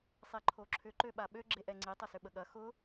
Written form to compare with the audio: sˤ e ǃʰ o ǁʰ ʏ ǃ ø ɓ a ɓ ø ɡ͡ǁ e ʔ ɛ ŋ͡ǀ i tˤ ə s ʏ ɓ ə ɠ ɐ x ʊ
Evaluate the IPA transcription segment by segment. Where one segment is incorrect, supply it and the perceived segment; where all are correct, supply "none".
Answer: none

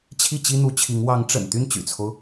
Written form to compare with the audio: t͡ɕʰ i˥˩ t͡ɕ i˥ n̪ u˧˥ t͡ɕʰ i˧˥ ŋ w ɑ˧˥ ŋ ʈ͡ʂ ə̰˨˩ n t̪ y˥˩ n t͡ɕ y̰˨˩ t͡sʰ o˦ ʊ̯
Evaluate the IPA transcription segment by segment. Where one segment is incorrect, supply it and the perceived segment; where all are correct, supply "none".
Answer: none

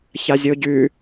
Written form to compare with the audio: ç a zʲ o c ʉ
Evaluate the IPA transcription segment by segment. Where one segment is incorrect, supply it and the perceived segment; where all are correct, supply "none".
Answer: c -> ɟ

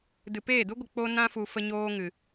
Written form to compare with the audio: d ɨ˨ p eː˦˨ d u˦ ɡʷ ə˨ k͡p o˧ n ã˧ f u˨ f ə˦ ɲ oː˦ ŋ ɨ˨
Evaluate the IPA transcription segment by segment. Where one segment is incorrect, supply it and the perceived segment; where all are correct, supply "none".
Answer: none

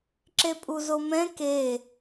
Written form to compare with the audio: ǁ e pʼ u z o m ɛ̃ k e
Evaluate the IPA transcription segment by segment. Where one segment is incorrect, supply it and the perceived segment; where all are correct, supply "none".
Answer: none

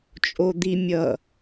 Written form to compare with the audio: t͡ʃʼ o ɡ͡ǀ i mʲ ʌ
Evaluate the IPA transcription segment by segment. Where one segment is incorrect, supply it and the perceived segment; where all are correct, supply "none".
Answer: ɡ͡ǀ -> d̪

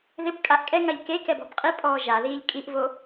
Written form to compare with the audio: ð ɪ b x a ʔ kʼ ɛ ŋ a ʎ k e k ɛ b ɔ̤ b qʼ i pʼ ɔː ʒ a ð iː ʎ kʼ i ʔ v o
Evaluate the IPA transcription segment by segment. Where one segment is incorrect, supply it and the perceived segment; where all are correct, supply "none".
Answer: x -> kʼ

